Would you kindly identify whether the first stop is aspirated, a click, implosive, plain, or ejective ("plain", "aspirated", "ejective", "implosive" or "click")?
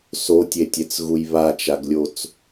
plain